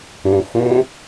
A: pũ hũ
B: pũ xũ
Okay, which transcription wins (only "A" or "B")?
B